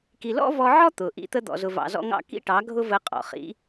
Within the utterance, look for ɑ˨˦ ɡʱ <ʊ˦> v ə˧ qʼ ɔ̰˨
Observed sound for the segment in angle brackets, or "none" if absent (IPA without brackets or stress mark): ʊ˦